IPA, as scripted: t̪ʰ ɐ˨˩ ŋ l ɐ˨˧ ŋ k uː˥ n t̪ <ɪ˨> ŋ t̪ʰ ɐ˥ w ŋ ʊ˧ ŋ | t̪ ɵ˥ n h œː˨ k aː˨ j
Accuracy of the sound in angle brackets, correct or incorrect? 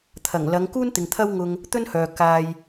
correct